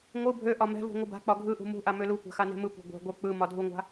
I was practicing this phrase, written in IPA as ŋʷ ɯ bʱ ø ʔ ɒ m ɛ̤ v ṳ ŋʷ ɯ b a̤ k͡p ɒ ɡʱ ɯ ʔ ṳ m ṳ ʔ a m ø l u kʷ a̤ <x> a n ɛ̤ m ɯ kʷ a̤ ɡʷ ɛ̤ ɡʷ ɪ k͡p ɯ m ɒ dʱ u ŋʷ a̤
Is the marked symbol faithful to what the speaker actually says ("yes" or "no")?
yes